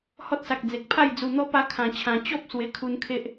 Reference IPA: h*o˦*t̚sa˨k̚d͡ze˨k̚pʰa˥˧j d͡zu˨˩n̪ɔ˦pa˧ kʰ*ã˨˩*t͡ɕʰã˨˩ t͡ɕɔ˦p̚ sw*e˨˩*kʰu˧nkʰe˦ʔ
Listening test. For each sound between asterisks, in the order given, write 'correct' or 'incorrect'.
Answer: incorrect: ɔ˦, correct, correct

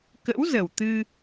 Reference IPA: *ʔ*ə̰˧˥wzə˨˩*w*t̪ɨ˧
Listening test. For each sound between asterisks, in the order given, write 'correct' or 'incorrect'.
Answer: incorrect: k, correct

